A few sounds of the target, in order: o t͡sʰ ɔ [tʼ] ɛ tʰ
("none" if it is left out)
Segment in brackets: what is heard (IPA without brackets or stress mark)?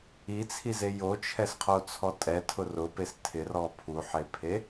tʼ